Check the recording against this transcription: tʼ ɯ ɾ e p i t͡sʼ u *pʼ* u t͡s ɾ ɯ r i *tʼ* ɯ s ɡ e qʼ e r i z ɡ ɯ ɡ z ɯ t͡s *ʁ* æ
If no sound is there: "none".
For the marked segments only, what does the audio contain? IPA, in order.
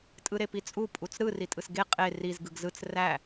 pʼ, tʼ, r

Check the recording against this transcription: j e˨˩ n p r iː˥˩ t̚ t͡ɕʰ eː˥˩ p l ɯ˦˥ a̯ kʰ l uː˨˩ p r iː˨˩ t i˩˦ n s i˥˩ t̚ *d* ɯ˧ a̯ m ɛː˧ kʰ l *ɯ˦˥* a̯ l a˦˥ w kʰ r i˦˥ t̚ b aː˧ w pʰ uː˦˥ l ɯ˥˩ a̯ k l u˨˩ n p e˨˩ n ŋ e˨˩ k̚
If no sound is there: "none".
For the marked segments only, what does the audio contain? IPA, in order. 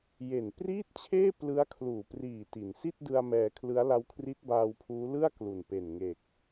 d, ɯ˦˥

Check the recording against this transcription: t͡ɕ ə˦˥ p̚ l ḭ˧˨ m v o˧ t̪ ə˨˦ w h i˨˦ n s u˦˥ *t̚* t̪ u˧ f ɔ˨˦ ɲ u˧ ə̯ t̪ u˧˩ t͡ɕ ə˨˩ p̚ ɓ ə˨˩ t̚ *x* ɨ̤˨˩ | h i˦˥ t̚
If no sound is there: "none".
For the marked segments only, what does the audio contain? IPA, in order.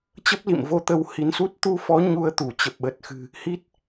t̚, x

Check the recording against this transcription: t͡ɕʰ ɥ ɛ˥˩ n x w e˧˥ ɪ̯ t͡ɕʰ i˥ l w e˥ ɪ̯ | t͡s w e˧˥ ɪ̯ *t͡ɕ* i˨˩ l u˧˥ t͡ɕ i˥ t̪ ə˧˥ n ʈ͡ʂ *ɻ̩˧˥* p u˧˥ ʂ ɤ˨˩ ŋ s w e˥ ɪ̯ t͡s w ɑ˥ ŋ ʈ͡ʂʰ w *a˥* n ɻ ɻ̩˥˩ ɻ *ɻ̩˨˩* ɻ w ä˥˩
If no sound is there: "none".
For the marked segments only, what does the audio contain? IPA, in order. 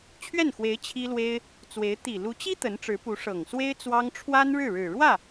t̪, ɻ̩˧˥, a˥, ɻ̩˨˩

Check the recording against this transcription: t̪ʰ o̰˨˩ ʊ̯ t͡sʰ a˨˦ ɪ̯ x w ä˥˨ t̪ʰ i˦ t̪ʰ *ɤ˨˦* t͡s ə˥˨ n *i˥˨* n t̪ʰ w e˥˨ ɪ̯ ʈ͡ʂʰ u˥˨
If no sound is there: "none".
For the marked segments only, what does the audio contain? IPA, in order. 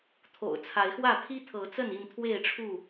ɤ˨˦, i˥˨

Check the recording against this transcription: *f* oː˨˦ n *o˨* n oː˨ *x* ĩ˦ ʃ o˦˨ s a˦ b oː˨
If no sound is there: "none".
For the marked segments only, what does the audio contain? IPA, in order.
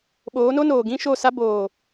ɓ, o˦, ɡ

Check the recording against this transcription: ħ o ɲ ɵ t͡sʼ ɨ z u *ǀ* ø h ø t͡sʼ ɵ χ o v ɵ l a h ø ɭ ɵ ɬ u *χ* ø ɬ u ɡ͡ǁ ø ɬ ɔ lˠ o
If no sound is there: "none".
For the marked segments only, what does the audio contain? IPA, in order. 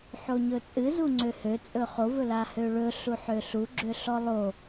ŋ͡ǀ, ħ

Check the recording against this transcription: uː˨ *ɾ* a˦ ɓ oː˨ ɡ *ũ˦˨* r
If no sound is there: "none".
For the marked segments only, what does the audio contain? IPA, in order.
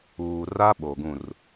r, ũ˦˨

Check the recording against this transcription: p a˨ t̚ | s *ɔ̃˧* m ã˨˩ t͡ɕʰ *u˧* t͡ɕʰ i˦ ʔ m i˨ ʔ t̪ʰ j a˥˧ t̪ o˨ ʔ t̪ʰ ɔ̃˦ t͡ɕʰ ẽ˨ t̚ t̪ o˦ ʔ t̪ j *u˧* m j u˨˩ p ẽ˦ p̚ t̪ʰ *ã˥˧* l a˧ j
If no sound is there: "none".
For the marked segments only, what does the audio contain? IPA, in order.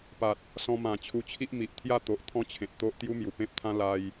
ɔ̃˧, u˧, u˦, ã˦

